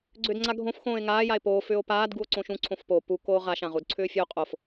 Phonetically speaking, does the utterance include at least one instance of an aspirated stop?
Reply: yes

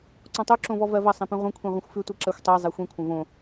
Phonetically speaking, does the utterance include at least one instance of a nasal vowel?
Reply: yes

